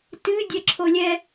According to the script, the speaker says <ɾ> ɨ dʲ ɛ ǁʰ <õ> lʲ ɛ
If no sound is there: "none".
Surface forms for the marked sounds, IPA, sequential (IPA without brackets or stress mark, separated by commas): t, o